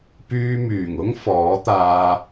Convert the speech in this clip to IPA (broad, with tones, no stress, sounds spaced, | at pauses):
p yː˧ m yː˨˩ ŋ ʊ˥ ŋ f ɔː˨˥ t̪ aː˧